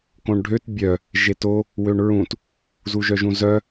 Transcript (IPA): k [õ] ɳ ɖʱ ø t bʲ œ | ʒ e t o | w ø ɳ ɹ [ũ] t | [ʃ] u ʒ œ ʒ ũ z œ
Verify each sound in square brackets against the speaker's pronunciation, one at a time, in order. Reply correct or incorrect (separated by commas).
correct, correct, incorrect